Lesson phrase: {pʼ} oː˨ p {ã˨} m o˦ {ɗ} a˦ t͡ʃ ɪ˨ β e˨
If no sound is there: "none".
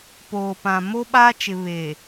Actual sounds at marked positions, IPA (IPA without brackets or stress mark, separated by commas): p, ã˨, ɓ